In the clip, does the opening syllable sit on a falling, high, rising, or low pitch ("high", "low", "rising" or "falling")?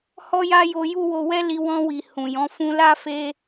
high